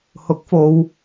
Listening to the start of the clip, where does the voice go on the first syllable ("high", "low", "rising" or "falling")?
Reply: rising